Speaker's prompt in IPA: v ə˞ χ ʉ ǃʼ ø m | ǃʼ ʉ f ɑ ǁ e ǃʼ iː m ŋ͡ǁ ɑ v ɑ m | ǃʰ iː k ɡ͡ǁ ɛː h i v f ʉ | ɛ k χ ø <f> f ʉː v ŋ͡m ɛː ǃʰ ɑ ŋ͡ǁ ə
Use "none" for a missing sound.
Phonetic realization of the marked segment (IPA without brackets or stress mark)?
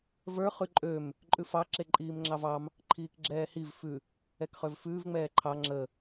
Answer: v